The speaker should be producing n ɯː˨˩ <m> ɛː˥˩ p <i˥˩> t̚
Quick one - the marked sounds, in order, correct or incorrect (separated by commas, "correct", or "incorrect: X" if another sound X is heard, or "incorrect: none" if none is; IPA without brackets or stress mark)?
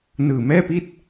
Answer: correct, correct